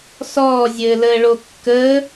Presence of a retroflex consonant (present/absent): present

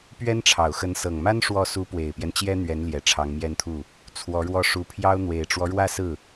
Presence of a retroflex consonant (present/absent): present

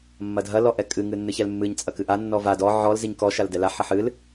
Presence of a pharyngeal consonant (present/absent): present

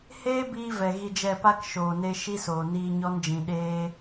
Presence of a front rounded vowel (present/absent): absent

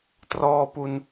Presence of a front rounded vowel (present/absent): absent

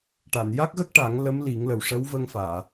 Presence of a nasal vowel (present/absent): absent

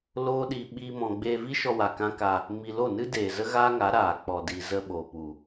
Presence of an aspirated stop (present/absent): absent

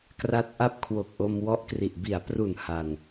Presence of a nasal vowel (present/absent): absent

